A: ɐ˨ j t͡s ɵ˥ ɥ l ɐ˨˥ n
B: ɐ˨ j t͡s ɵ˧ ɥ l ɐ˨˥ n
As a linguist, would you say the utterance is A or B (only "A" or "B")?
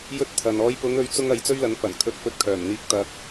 A